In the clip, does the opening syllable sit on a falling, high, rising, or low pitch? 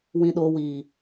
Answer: low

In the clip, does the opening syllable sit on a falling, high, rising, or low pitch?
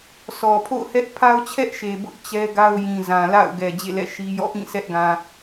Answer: low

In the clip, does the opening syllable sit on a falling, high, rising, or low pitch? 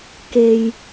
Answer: low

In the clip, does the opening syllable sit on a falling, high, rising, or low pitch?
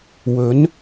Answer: rising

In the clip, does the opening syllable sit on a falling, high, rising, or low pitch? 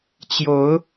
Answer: rising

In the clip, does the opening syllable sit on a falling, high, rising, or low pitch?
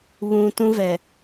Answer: low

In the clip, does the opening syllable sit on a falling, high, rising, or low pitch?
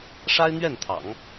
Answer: high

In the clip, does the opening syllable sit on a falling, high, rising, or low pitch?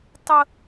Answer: high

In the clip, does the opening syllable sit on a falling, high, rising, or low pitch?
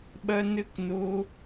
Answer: high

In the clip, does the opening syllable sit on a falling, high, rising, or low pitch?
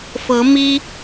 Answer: rising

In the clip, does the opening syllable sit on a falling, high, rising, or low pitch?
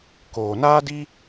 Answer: low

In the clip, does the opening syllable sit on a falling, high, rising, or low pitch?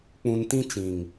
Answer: low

